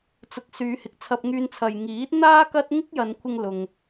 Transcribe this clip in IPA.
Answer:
t͡s ʊ˨ k̚ s yː˨˧ h ɪ˨ k̚ t͡sʰ ɐ˧ p̚ ŋ yː˧ n t͡sʰ ɐ˨ j ŋ iː˨˥ t̚ n̪ aː˥ k ɐ˥ t̚ ŋ ɪ˥ k̚ j ɐ˨˧ n kʷʰ ɪ˧ ŋ l ʊ˨ ŋ

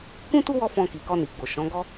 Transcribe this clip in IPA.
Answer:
k ũ˦ t u˦ w ɔ˦ f ɔ̃˧ k i˨ k ɔ˧ n i˨ ɡ͡b o˨ ʃ ɔ̃˨˦ ɡ ɔ˦

